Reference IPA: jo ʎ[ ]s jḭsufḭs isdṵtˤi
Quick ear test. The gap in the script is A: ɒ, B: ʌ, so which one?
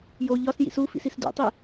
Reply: A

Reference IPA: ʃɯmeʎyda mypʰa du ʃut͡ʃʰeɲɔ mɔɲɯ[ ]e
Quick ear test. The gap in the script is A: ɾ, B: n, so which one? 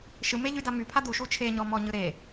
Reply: A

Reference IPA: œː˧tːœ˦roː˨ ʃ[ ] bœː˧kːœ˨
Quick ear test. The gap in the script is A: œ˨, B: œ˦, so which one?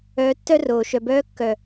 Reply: A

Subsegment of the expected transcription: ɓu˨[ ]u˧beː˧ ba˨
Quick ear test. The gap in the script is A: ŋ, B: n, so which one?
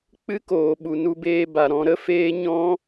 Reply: B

